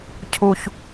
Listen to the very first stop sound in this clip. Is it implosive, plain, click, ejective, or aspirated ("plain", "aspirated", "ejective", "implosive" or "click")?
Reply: aspirated